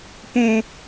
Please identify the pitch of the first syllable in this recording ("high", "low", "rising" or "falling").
high